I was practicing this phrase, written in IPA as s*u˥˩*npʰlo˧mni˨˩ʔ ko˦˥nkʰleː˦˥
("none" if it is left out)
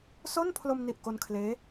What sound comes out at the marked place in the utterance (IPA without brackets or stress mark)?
o˥˩